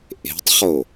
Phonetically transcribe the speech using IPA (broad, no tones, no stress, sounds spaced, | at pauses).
ʔ e̤ tˤ χ o